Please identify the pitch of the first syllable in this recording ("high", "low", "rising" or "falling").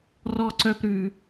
high